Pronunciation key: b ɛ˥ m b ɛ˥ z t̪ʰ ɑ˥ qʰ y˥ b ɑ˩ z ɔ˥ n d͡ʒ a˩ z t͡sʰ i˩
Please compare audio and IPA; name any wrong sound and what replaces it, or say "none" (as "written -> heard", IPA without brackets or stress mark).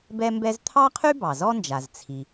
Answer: none